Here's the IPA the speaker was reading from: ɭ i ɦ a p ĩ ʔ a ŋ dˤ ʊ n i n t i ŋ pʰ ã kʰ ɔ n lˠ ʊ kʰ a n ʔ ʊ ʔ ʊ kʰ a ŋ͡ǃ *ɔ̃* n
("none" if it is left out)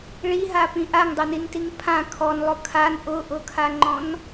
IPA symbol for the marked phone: ɔ̃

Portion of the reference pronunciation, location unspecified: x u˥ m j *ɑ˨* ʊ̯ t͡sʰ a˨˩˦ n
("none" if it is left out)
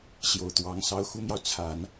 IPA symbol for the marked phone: ɑ˨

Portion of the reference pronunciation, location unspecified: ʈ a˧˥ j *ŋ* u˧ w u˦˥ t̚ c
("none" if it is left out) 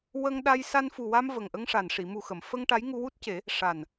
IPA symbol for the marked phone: ŋ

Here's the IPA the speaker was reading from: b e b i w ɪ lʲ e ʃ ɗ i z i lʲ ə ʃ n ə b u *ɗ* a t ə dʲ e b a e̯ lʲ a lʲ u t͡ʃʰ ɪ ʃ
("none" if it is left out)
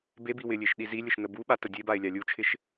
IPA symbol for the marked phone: ɓ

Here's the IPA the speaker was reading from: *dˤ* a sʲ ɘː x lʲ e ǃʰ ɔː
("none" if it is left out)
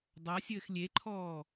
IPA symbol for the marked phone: dˤ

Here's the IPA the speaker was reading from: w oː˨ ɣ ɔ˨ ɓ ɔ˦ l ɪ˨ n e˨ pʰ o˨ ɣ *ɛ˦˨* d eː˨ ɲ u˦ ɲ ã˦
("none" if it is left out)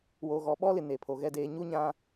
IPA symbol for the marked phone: ɛ˨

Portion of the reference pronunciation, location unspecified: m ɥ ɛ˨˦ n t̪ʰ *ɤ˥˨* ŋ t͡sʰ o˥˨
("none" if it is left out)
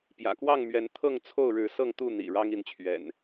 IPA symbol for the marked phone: ɤ˥˨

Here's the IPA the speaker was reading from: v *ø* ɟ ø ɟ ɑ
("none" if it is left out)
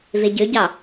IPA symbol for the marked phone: e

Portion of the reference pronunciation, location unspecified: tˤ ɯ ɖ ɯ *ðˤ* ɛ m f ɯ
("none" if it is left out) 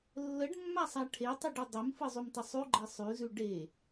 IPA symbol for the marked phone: dˤ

